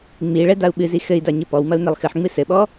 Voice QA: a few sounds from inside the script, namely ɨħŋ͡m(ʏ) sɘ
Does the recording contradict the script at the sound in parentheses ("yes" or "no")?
yes